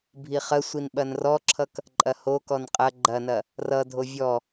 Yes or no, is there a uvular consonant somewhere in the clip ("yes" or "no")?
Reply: yes